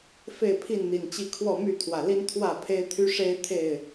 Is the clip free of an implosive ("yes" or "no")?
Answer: yes